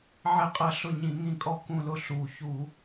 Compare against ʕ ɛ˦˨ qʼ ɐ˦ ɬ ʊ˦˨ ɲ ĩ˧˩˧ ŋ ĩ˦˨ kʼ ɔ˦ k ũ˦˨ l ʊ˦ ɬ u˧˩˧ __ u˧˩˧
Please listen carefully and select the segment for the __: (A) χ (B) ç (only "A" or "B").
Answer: B